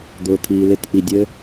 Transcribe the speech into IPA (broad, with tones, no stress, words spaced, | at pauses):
d̪ʊː˨t̪ʰiː˨lɪ˦˨t ʔi˨dʲɘ˦